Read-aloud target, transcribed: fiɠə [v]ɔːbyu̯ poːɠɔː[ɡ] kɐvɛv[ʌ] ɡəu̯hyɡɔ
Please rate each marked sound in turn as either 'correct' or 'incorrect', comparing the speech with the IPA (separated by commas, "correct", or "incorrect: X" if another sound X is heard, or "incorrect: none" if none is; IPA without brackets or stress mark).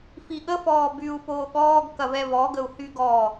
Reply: incorrect: f, correct, incorrect: ɔ